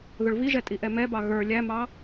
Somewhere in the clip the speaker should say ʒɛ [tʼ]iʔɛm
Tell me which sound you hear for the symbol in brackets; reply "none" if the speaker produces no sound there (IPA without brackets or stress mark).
tʼ